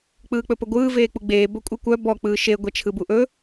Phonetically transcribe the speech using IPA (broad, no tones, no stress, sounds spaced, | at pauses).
k͡p ɯː k͡p ɵ p ə ɡʷ ɯː v eː k͡p u ɡ͡b eː b ɵ kʷʼ ɯ kʷ œ b ɔ k͡p ɯː ʃ e ɡʷ ɛ t͡ʃʰ ɯ b u ʔ ɵ